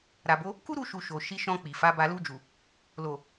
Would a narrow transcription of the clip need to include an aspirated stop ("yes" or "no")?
no